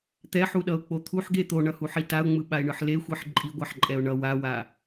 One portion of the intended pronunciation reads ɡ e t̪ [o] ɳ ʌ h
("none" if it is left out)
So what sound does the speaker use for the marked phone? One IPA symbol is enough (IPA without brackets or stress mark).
o